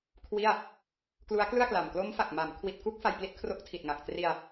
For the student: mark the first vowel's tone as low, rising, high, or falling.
falling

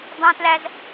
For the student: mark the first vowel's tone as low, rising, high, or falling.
high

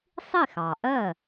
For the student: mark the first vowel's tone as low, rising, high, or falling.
falling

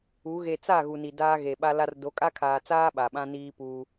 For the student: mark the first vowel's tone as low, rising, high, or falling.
rising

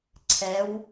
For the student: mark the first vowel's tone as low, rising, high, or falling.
rising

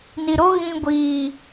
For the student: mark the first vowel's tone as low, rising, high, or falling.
low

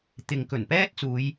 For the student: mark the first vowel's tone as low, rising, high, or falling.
low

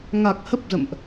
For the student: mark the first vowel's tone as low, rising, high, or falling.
low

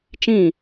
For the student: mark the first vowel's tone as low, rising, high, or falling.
falling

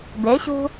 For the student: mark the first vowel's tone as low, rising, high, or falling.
rising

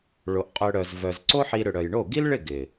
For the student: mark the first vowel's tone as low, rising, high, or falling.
low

